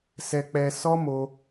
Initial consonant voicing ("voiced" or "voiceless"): voiceless